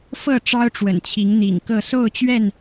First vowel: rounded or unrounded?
unrounded